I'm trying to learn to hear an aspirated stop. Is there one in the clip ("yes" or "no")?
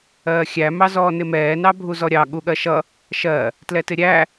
no